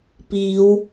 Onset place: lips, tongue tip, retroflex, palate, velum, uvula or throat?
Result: lips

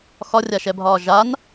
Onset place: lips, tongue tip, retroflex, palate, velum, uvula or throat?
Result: velum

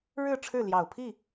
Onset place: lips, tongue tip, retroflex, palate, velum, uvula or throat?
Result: retroflex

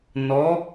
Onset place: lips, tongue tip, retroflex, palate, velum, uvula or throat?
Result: tongue tip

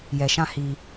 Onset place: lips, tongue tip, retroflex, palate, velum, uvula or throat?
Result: palate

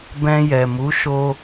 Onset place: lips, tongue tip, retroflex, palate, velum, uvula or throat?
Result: lips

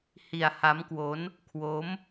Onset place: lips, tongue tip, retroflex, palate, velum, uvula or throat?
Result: throat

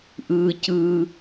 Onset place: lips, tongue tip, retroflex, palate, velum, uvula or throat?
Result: throat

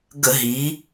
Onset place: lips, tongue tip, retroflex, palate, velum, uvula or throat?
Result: velum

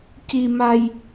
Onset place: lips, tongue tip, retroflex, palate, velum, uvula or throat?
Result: palate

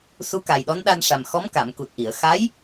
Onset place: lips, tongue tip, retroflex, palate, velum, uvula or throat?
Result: tongue tip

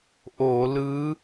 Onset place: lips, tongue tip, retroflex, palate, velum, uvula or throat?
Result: throat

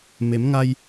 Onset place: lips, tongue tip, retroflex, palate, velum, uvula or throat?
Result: lips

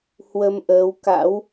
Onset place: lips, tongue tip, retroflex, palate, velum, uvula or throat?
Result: throat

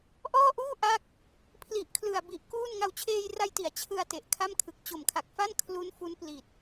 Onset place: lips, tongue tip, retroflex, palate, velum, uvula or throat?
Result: throat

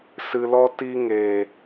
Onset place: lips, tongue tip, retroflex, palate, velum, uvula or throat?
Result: tongue tip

